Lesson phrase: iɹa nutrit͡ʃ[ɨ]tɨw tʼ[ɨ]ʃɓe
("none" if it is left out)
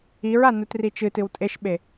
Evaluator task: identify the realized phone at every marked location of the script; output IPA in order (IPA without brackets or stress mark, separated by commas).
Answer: ɨ, e